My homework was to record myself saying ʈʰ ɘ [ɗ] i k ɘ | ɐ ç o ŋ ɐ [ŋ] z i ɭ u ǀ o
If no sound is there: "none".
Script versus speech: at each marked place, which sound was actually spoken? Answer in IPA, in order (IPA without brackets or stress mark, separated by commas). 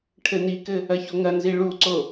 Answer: n, n